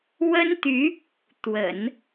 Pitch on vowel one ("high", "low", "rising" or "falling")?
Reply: high